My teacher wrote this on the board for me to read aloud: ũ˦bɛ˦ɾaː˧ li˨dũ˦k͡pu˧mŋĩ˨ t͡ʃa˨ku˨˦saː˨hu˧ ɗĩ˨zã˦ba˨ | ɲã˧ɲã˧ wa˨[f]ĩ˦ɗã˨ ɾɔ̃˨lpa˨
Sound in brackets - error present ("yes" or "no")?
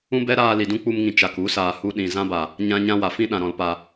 no